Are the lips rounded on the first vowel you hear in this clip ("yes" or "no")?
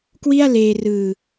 no